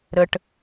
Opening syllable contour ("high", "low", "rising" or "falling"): low